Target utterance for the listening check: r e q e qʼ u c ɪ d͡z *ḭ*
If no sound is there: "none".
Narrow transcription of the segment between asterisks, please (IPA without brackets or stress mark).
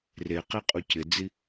i